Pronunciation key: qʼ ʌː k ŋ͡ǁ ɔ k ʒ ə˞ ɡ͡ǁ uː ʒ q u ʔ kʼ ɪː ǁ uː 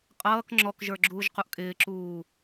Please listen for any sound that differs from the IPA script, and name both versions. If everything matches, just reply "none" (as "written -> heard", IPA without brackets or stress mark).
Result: none